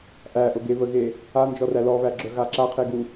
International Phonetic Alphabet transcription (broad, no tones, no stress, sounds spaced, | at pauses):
ʔ æ ʔ ʊ ɡ e β ə ɣ e | a n d͡ʒ ɔ r æ l ɔ β æ ɡ͡ǁ œ ɣ a ǁ a qʰ e ɡ u